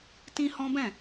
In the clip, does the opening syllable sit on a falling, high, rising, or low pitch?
high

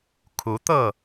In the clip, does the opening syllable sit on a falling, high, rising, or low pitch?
rising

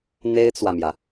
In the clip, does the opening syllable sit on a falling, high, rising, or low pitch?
high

